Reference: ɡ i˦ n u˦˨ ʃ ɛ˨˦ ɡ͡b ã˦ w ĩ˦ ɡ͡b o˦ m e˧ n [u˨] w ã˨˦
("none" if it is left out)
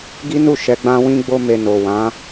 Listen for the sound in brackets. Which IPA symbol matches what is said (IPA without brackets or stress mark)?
o˨